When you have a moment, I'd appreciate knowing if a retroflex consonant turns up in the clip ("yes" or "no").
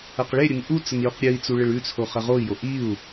yes